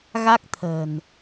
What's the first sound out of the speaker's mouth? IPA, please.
ɣ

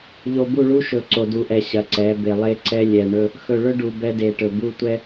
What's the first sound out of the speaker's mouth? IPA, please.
ʎ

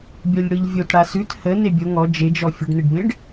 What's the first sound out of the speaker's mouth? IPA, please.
bʲ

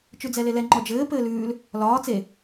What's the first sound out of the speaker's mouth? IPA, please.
t͡ʃ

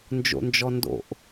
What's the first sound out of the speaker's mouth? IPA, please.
n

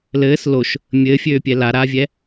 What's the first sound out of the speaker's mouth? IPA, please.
l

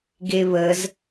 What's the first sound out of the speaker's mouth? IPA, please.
ɡ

